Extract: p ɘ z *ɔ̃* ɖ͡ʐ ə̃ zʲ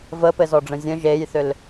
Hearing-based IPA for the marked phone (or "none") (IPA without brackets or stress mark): ɔ